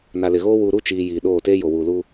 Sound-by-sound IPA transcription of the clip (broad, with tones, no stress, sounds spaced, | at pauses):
n a˨ l ɪ˨ ɣ oː˦ w u˨ ɾ u˦˨ t͡ʃ iː˨ j iː˨ ɗ oː˦˨ t eː˦ j o˨ w uː˨ l u˦